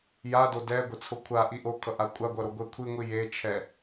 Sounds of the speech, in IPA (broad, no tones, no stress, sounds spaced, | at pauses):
j a d o d ɛ ɡʷ ɛ t͡sʰ o kʷʰ a ʔ i ʔ o kʰ ʌ ʔ a kʷʼ a ɡʷ ʌ ɾ o ɡʷ ɛ kʷʰ i ŋʷ i j e t͡ʃʰ ɛ